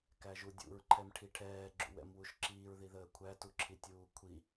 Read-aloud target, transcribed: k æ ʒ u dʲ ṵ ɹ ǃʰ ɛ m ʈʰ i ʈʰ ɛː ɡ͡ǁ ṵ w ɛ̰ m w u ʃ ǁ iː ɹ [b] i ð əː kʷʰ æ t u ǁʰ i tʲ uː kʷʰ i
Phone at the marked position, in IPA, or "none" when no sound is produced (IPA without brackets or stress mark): ð